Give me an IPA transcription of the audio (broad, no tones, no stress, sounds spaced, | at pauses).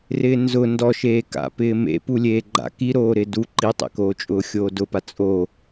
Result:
r ɪː n z ʊ n d ɔ ʃ eː k a̰ p ɪː m ḛ p u lʲ eː ɡ͡ǃ a̰ k i ɾ oː ɾ ɪ d u ǃ i tˤ ḛ k oː t͡ʃʼ ʊː xʲ oː d ʊ p a t͡sʼ o